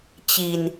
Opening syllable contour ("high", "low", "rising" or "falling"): low